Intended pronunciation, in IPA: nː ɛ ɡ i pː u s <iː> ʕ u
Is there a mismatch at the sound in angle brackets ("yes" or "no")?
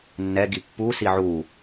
yes